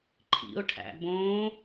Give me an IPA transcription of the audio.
ǃʰ ḭ ʊ̯ ʈʰ æ̰ b õ

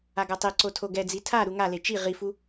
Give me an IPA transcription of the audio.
a ɡ ʌ tˤ e ǀ o tʰ o ɡ ɛ d͡z i tʰ a ɾ u ŋ a l e t͡ʃ i ʁ i f u

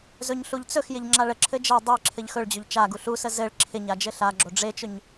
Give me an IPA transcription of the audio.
z ɵ ɲ ɬ u ʎ t͡s ɵ x j ɪ ʎ ŋ͡ǁ a ɭ ə ǁʰ ɘ d͡ʒ ə j dˤ ə j ǁʰ ɘ ʎ x ɵ ɭ d͡ʑ ɵ ʎ t͡ʃ a ɡ u ɬ u s ə z ɘ ɭ ǁʰ ɪ ɲ a d͡ʒ ɘ ɬ a ɡ͡ǁ o ɖ͡ʐ e t͡ʃ ɵ ɲ

